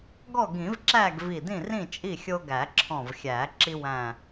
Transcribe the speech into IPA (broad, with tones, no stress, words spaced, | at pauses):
ɡɔ˥˨ɡĩ˨˩˦vǁæ˥˨ɡ vi˧˩dĩ˥˨rĩ˥˨t͡ʃʼi˥˨ xʲo˦ɡæ˨˩˦ǁʰɔ̃˧˩vxʲæ˨˩˦ ǁi˦wæ̃˧˩